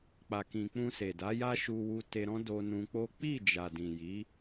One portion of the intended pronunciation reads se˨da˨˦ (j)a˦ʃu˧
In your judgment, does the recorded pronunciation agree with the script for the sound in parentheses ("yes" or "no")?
yes